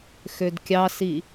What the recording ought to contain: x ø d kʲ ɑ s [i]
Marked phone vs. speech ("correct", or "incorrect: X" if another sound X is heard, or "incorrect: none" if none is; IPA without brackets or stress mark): correct